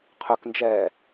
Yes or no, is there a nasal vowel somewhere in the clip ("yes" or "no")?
no